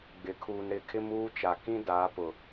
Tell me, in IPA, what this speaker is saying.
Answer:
ɡ͡b ɪ˨ kʰ uː˨ n ɾ ɪ˨ kʰ ɪ˦ m uː˦ t͡ʃ a˨ k ĩ˦ d aː˨˦ p ʊ˨

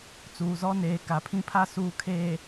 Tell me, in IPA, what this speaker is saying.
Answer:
t͡s uː˨ z ɔ˦ n eː˨ k a˨ pʰ ĩ˦ pʰ a˦ s uː˨ kʰ eː˨

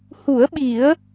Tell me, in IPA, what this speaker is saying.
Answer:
h u˨˩˦ ə̯ ɓ i˨˩˦ ə̯

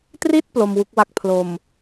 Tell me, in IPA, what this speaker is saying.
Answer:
t r i˥˩ t̚ p l o˧ m w u˦˥ k̚ w a˥˩ k̚ pʰ l o˨˩ m

